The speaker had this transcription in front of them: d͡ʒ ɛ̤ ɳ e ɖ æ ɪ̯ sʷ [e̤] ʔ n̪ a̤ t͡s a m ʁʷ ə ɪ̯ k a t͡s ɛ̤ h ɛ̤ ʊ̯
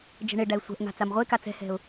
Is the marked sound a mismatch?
yes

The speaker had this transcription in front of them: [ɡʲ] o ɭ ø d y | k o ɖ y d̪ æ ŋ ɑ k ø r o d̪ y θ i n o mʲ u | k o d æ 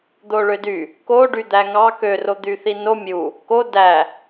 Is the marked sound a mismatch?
yes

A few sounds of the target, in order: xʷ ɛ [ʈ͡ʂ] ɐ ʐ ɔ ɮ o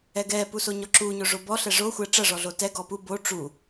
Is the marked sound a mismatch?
no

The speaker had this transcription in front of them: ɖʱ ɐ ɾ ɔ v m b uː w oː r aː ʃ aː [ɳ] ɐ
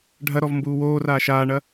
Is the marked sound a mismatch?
no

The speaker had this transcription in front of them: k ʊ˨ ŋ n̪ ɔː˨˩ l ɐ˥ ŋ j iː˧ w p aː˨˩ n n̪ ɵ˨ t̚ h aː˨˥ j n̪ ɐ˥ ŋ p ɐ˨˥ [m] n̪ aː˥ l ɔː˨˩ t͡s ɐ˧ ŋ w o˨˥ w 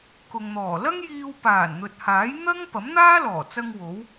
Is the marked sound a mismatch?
no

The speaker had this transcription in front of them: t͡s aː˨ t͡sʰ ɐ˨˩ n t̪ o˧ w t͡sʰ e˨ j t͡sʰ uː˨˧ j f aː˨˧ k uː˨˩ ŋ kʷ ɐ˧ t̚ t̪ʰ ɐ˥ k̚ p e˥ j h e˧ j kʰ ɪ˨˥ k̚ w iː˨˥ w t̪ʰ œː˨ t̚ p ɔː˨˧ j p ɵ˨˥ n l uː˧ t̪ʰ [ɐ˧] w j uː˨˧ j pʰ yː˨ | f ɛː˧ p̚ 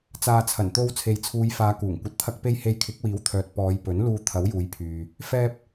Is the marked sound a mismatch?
yes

